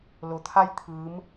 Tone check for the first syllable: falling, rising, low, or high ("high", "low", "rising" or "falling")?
low